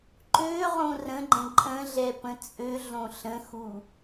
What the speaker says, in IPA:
ǃøʁõ rə̃ɡ͡ǃə̃ ǃʼə̃ɮɛ pə̃t͡sʼøɮõ ɬə̃xu

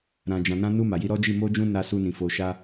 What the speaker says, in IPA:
ɾã˨d͡ʒã˨nã˧ nu˧ ma˨ji˧ɾɔ˦d͡ʒi˦˨ mo˧d͡ʒũ˧ na˧su˧nĩ˨ fo˨ʃa˧

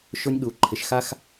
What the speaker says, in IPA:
ʃʊ˧nʲɠu˨ǃʰɪ˨ʃxa˧x

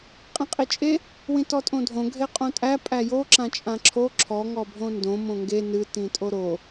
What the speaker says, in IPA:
qʼĩqʼit͡ʃʼe | wĩtɔtʼõdʱõ ɡʱeqʼõtʼæ pʼæjo ǁãt͡ʃʼãǁʰo ǁʰɔ ŋɔbʱõndõ mõŋɡe nɨ tĩtʼoɾo

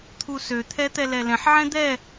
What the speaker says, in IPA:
t̪ʰusø t̪ʰɛt̪ɛlɛlɛ̃ħ ʕɛ̃d̪ɛ

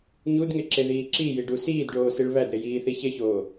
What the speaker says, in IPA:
ɲudŋeǁeðiː ǁijiɖu siːdɖoːsiɭ βædɾejiːθi çeçoː

